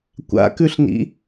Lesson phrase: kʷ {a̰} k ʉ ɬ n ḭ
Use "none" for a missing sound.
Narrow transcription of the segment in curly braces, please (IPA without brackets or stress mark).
a̰